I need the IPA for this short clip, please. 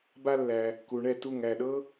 b a˧ lː æ˩ | k u˩ ɳ ɛ˥˩ t u˥˩ ŋ æ˥˩ ɗ ɤ˥

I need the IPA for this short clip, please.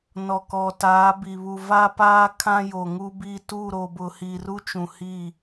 n ɔ˨ k ɔ˨ t aː˨˦ b i˨ β u˨ v a˦ p aː˦ kʰ ã˦ j o˨ ŋ u˦ b i˦˨ t u˦˨ ɾ o˨ b ʊ˨ h i˨ r u˦ t͡ʃ ũ˨ h i˦˨

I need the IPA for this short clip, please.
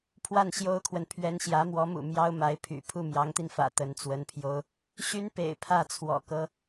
pʰ w a˥˩ n ɕ j o˥ ʊ̯ kʰ w ə˨ n pʰ ɥ ɛ˧˥ n ɕ j ä˧˥ m w ɔ˧˥ m ṵ˨˩ m j ɑ˥ ʊ̯ m a˧˥ ɪ̯ pʰ y̰˨˩ pʰ u˥˩ m j ɑ˧˥ ŋ t̪ i˧ n f ä̰˨˩ t̪ ə˧˥ n t͡s w ə˧˥ n pʰ j o˥ ʊ̯ | ɕ y˥ n p ḛ˨˩ ɪ̯ pʰ ä˥˩ t͡sʰ w ɔ̰˨˩ k ɤ˥

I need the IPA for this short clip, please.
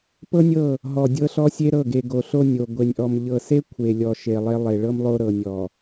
p ɤ˦ nʲ ɤ˦˨ | ɦ ɔ˨ dʲ ɤ˦ ɬ ɔ˦ sʲ e˦ ɾ ɤ˦˨ ɡ e˨ ɡ o˨ ɬ o˦ nʲ o˨ ɡʷ e˨ nʲ ʔ ɔ˨ m ʎ ɤ˨ s e˦ kʷʰ e˨ lʲ ɔ˨ ʃ e˨ lˠ e˦ lˠ e˨ ɭ ɤ˦ m lˠ o˦ ɾ ɤ˨ nʲ ɔ˨

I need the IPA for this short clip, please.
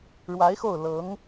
ɻ w a˧˥ ɪ̯ x o˥˩ ʊ̯ l ɤ˧˥ ŋ

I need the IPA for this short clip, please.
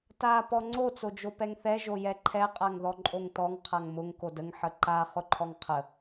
t a p ɔ ŋ͡ǀ o t͡s o d͡ʒ o p ɛ ŋ θ ɛ ʒ o j ɛ ǃʰ ɛ qʼ a ŋ ð ɔ ǃʼ o ŋ t ɔ ŋ qʰ a ŋ m ʊ ŋ k o d ə ŋ ħ ə ǃ a χ ʊ ǃʰ ɔ ŋ qʰ ə

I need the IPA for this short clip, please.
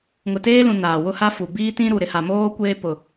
ŋ ʊ˨ t eː˦ l ũ˨ n aː˨ w ʊ˦ h a˦ f u˨ b iː˦ t ĩ˦ ɾ u˨ ɾ ɪ˨ h a˨ m oː˦ kʷ eː˦ p ʊ˨

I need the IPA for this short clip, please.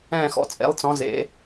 ɛ̃ː˧˩ x ɔ̰˩˧˩ t͡sʼ ḛ˩˧ lˠ t͡s ɔ̃˩˧ z ḛ˩˧

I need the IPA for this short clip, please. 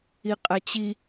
i qʼ æ t͡ɕ i

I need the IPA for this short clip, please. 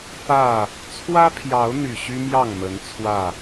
f ä˥˨ | t͡sʰ w ä˦ pʰ j ɑ˨˦ ʊ̯ n̪ y˨˩ ɕ y˦ m j ɑ˥˨ ŋ m ə˨˦ n t͡sʰ w ä˥˨

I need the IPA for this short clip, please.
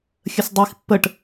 xʲ ə s dˤ i x pː ə ʈ

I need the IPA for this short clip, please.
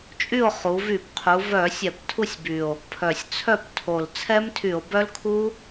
t͡ʃʼ y˥˨ o̯ χ u˩˧ v y˧˩˧ p qʰ u˩˧ v œ˧˩˧ sʲ ɛ˧˩˧ p tʰ u˥˨ sʲ b y˨˩ o̯ | pʰ œ˨˩ sʲ t͡sʰ œ˥˨ p tʰ o˨˩ l t͡sʰ ɛ˦˥ m tʰ y˧˩˧ o̯ b œ˦˥ l kʰ u˦˥

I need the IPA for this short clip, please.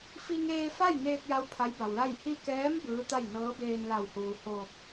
f i˧ ŋ eː˧ f a˥˨ j n eː˧ k̚ j a˧˥ w pʰ a˧˥ j b a˩ w l a˥˨ j h i˧ k ɛː˧˥ m b ɯː˧˥ t̪ a˥˨ j n ɤː˧˥ b eː˧ n l a˧˩ w h uː˩ h oː˧˩ p̚

